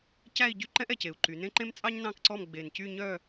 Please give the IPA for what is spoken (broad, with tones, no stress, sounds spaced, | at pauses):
c æ˥˧ i̯ ɟ y˥ ǃ ɛ̃˥ ʔ ɛ˧˩ c e˩˧ u̯ ǃ y˩˧ n ẽ˥ ǃ ẽ˥ m t͡sʼ ɑ˥ ɲ n ɑ̃˥˧ k ǀ ɔ˥˧ m ɡ͡b e˧˩ n c y˥˧ ɲ œ˥˧